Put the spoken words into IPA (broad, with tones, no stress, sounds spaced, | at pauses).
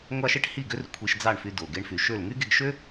ŋʷ ɑ˥ ʃ e˥ ʈ h i˥˩ ɡ ø˥ r kʷʰ i˧ ʃ d͡z ɑ˥˩ ɳ f y˧ d o˩ ɡ e˧ ɳ f y˩ ʃ ø˥˩ l ŋ y˥ ɡ e˧ ɡ ʃ ø˥